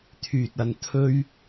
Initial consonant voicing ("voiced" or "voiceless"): voiceless